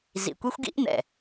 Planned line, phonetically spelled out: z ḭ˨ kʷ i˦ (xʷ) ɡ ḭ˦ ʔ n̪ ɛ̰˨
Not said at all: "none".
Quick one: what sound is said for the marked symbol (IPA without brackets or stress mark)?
xʷ